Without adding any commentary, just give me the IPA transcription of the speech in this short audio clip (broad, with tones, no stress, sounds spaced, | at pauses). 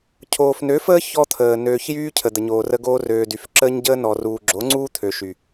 cʰ oː˨ f n ø˨˦ f əː˦ ç ɔ˦ t̪ʰ əː˨ n øː˨ ç j yː˦ cʰ ə˨ d̪ ə˨ ɲ oː˨ r ə˧ ɡ oː˧ r øː˨ d y˨ f ǁ əː˦ ɲ ɟ əː˦ n ɔ˨ r uː˨ ɡ͡ǁ o˨˦ ŋ͡ǀ uː˦ t̪ʰ ø˨ ʃ y˨